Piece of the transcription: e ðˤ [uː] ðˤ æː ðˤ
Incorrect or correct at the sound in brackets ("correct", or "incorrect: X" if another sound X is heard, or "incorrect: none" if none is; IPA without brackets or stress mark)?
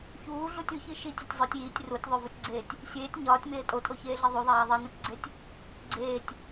incorrect: u